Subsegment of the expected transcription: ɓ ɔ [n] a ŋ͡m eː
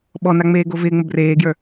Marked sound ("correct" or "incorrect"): correct